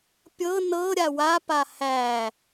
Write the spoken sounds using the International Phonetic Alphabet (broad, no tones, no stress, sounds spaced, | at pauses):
pʲ ɤ n ɤ ɾʲ a w a p a h æ